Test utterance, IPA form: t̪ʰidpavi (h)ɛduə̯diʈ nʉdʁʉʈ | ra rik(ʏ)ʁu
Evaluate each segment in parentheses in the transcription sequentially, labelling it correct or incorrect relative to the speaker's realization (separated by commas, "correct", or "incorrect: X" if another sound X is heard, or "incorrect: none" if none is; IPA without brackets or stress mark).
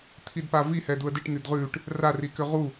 correct, correct